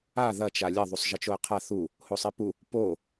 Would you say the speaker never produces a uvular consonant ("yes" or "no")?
no